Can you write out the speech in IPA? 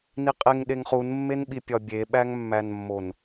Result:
n i qʼ e ŋ ɗ e ŋ χ u n mː e n ɓ i pʲ ɒ bʲ e ɓ æ ŋ mː æ n mː o n

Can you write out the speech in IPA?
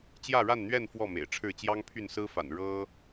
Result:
t͡ɕ j ä˥˨ ɻ a˥˨ n n̪ ɥ ɛ˥˨ n f w ɔ˥˨ m ḛ˨˩ ɪ̯ ʈ͡ʂʰ ɻ̩˥˨ t͡ɕ j ɑ˦ ŋ pʰ y˥˨ n s ɹ̩˦ f a̰˨˩ n ɻ ɤ˦

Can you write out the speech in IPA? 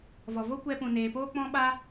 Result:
v ɔ˨ v o˦ kʷ ɛ˧ p ũ˨ n eː˨ p oː˦ k͡p ɔ̃˦ ɓ a˦

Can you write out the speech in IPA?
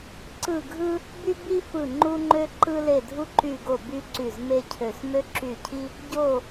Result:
ǀ ɯ˦˨ ɡʱ ɯ˥ | b y˥ b i˥ f ɯ˦˨ ŋ͡ǃ u˥ ŋ͡ǃ ø˥ ǃ ɯ˥ l e˦˨ dʱ u˥ ǃ y˦˨ ɡ o˦˨ b y˥ ǀ y˦˨ z m e˥ cʰ ø˦˨ s m ø˥ ǁ y˦˨ cʰ i˥ | ɟ o˦˨

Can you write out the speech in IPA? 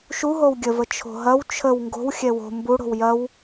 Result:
ʃ u ɦ o w ɡʲ ə v ə t͡ʃʰ o̤ ɦ ɐ w t͡ʃʰ ə w ŋ ɡ o̤ w xʲ ɛ w o̤ m b u ɽ o̤ w j ɐ w

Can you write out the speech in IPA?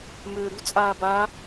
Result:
m ʏː ɾ ṳ t͡sʼ aː b a

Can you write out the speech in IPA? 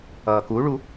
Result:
ʌː k u ɭ u

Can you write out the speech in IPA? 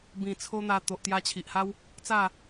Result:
b ĩ˨˩ t͡sʰ o˦ n̪ a˧ t̪ o˨ ʔ t̪ j a˧ t͡ɕʰ i˨ ʔ h a˦ w | t͡s a˥˧

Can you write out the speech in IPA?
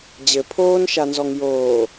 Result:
d͡ʑ ɘ pʰ oː n ʃ a n z ɔ ŋ j oː

